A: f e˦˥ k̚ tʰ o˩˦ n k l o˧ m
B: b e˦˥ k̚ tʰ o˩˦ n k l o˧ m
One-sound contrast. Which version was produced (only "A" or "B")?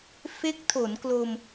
A